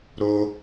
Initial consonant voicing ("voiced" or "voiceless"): voiced